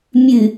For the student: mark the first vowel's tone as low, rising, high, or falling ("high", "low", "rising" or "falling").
low